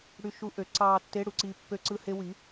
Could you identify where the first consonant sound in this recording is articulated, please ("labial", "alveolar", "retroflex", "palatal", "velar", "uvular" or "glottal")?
retroflex